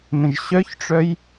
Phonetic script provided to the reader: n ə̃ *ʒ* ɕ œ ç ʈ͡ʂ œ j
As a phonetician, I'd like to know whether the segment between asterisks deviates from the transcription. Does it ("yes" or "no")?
no